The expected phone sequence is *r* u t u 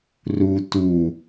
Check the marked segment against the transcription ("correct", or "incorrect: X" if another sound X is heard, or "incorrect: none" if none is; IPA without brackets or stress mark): correct